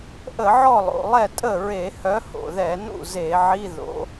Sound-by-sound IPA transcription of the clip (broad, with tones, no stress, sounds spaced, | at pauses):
ʔ ə˧˩˧ ʕ ɔ˥˩ lˠ o̰˩ lˠ ɛ˥˩ tʼ ə˥˩ ɹ e˧˩˧ h œ˨˥ h o̰˩ ð ɛ˧˩˧ n ṵ˥˩ z e˧˩˧ ʕ i˧˥˧ ð o̰˨˥